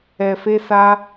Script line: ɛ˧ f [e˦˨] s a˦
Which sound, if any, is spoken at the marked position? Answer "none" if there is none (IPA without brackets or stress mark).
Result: e˦